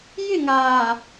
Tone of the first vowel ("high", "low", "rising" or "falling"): falling